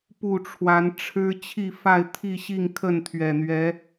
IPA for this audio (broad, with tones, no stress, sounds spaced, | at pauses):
p u˥˨ ʈ͡ʂʰ w a˨˦ n ʈ͡ʂʰ ɻ̩˦ t͡ɕʰ i˥˨ f a˥˨ ɪ̯ t̪ʰ i˥˨ ɕ i˥˨ ŋ kʰ ə˥˨ n t̪ʰ ɥ ɛ˨˩ n̪ ɥ ɛ˨˦